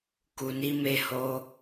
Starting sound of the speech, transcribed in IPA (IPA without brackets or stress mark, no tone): k